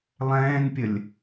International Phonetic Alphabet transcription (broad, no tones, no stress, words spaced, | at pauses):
lˠɛ̃ːnpʲəlʲ